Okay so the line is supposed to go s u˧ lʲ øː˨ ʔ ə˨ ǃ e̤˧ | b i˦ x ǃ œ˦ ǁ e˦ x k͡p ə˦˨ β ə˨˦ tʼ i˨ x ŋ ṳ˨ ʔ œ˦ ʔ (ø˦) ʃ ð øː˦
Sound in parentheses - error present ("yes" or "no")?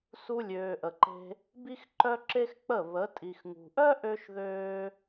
no